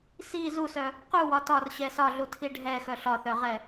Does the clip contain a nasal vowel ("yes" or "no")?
no